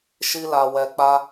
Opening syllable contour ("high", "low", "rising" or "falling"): high